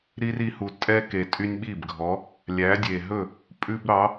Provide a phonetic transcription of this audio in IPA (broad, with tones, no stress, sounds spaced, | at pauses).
ɾ i˦ r i˨˥ h u˨˩ tʼ ɛ˦ k e˨˩ tʼ y˦ nʲ ɓ i˥˩ b ɡʱ ɔ˨˥ | lʲ æ˨˥ dʲ e˨˩ ɦ ɵ˥˩ | pʼ ʉ˦ b ɾ ɑ˨˥